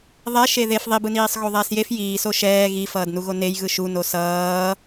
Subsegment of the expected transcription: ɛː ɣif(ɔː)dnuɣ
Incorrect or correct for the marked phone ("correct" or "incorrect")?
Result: incorrect